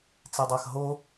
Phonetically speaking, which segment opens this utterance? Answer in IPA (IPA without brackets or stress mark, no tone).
t͡s